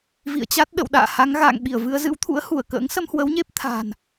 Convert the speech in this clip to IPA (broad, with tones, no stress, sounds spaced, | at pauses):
v ḭ˧˨ ə̯ t͡ɕ a˦˥ t̚ ɗ ə̰˧˨ w ɗ a̰ː˧˨ h a˨˦ ŋ ɣ a̰ː˧˨ ŋ ɓ i˧˩ ə̯ v ɨ˧ ə̯ z ɨ̰˧˥ w t̪ʰ ṵ˧˥ ə̯ h u˧˩ ə̯ k ə̰ː˧˥ ŋ s ə˧ m h w ə˨˦ w ɲ e˦˥ p̚ t̪ʰ a̤ː˨˩ n